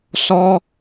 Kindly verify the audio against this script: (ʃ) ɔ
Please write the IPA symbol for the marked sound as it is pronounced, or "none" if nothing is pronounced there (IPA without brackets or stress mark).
s